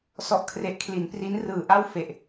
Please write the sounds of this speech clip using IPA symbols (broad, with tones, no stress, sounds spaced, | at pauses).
s ɔ˥˩ ʔ kʰ r e˦˥ ʔ kʰ l i˩˦ n p r i˦˥ n r ɯː˩˦ ʔ a˥˩ w f e˨˩ ʔ